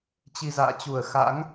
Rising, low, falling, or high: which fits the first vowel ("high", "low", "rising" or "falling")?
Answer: low